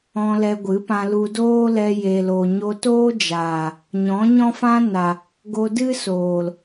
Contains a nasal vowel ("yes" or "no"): yes